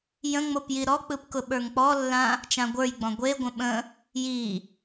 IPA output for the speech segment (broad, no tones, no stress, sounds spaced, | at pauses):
j ə̃ ŋ͡m o p j i ɾ ɔ k͡p ɯ p k ʊ ɓ ə˞ ŋ k͡p ɔ lː ã | t͡ʃ ã ɡʷ ə˞ j ɡ͡b ɔ̃ ɡʷ e ɡʷ ə̃ ɓ ə̃ | j i